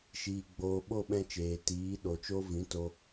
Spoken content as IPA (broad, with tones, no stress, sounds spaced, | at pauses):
ʃ iː˧ ɡ͡b oː˧ ɓ o˦˨ ɓ ɛ̃˧ t͡ʃ eː˨ t iː˨˦ ɗ o˨ t͡ʃ o˦ v ĩ˨˦ t o˧